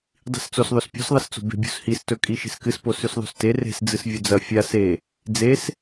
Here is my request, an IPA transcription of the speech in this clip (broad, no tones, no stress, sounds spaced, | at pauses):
dˤ i̤ s t͡s o s ðˤ ɵ s pʲ o̤ s ðˤ ɐ s t͡s o̤ b e̤ bʲ ṳ s h i s t ɵ kʼ i ʃ e̤ s k ɨ s p o s ʉ s ðˤ o̤ s t e r e̤ s d͡z ɨ s vʲ ɵ d͡z ɐ fʲ a s e | d͡z e s